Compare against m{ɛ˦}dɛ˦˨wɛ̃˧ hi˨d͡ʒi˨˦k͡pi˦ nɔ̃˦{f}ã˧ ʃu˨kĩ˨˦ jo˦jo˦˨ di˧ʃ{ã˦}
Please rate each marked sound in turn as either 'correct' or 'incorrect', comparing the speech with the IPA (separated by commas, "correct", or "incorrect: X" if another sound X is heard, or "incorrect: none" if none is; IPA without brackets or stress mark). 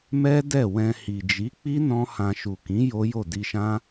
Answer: correct, incorrect: h, correct